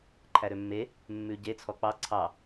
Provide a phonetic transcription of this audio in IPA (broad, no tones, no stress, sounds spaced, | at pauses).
ǃʰ æ ɾ ø mː e | mː ʉ ɟ e t͡sʰ ɔ k͡p ɑ ǀʰ ɑ